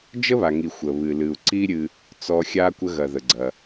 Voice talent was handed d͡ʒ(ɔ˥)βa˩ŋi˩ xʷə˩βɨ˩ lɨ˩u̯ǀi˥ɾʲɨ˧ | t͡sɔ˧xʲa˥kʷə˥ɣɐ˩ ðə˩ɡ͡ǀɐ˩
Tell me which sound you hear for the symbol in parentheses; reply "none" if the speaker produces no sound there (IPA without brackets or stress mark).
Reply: ə˥